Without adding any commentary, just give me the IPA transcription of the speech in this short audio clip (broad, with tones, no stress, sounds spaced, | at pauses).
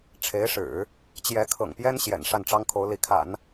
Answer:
ʈ͡ʂʰ e˧˥ ɪ̯ ʂ ɻ̩˨˩˦ | t͡ɕ j ɛ˧˥ kʰ ɤ̰˨˩ ŋ p j ɛ˥ n ɕ j ɛ̰˨˩ n ʂ a˥˩ n ʈ͡ʂ ɑ˥ ŋ kʰ o˧˥ ʊ̯ l i˧˥ kʰ a̰˨˩˦ n